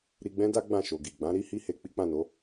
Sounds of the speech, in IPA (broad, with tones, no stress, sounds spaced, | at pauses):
ɾ i˧ ɡ͡b ɛ̃˦ d a˦ ɡ͡b ã˦˨ ʃ o˨ ɡ i˨ ɡ͡b ã˨˦ ɾ i˦ h i˦ h e˧ k͡p i˦ k͡p ã˦˨ n o˨˦